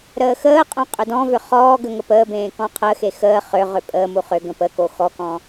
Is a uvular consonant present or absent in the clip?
present